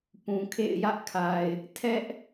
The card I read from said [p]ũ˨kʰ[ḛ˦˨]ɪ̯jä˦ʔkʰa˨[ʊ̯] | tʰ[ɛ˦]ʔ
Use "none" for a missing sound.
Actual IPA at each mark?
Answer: p, ḛ˦˨, ɪ̯, ɛ˦

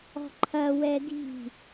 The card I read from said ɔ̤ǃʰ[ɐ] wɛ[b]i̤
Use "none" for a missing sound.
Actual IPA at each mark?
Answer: ɐ, d

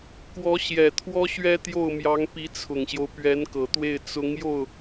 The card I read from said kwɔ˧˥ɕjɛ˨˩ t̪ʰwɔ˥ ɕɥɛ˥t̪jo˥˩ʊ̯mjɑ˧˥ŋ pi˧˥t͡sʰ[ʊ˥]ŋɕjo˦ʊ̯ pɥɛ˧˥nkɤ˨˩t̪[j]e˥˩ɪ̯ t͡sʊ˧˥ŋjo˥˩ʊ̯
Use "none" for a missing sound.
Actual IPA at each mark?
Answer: ʊ˨˩, w

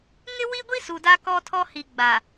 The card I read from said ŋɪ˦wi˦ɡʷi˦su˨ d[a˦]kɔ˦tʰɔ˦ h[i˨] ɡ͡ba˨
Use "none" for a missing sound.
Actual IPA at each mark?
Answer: a˦, i˨

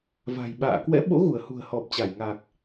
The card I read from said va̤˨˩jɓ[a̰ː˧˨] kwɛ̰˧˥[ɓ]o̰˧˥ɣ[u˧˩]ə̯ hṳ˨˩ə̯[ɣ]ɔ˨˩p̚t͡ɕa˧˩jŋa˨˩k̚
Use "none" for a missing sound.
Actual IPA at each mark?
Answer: a̰ː˧˨, ɓ, u˧˩, h

